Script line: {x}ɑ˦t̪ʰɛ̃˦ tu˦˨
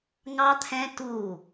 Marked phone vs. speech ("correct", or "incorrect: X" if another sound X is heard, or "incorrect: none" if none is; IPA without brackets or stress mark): incorrect: ŋ